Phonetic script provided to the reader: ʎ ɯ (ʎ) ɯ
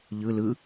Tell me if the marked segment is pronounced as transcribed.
no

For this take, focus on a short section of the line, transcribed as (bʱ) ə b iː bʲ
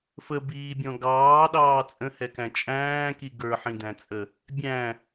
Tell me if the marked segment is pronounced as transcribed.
no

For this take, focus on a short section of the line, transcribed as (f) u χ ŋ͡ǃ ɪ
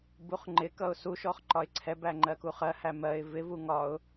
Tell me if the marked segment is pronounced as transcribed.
no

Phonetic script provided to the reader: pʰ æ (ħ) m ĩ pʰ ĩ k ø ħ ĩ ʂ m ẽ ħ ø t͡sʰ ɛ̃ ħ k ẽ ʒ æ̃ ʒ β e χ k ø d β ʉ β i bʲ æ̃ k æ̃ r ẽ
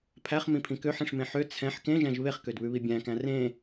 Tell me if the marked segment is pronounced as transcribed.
no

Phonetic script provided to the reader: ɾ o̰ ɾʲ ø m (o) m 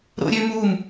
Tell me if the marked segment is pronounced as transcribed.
no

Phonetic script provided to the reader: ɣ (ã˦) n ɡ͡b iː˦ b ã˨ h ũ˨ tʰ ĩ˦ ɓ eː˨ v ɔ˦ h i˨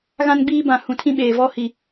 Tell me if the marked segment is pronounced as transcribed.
yes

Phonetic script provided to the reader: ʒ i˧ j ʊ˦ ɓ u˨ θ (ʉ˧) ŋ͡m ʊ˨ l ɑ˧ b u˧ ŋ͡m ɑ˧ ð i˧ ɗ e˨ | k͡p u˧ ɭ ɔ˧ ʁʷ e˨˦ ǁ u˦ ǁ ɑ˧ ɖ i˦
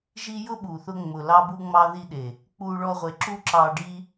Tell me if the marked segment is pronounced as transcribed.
no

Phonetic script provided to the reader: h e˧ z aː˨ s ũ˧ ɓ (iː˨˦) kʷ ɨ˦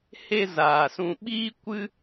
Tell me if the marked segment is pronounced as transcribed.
no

